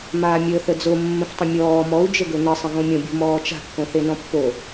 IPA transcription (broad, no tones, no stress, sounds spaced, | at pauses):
m aː mʲ əː θ ə d͡z o mː ə̃ f tˤ ə̃ mʲ ɔː m ɔ u̯ d͡ʒ ə ɡ ɵ n ə sˤ ə̃ ɣ õ mʲ õ bʲ o̤ m ɔː t͡ʃ a̤ kː õ θ e n ɔ̃ pː o